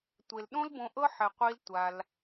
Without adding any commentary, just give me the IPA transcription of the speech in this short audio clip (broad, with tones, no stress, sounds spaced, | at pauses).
tʷ e˨ l ɗ õ˦ l b õ˧ ʔ ɤ˦ ħ ɛ˨ qʷ i˦ l tʷ a˧ l